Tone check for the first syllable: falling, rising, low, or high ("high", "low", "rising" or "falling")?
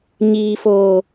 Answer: low